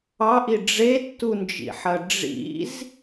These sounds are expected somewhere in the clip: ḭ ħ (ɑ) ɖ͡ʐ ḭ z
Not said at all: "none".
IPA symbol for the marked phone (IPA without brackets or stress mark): ɐ